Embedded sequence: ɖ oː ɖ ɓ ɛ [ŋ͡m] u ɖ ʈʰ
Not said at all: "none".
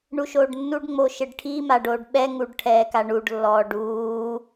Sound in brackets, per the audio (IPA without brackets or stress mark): ŋ